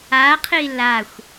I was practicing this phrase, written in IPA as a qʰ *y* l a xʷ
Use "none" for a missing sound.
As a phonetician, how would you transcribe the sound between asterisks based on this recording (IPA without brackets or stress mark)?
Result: i